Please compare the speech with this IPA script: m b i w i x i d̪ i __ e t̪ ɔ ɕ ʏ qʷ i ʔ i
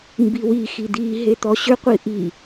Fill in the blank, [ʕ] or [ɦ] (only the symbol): ɦ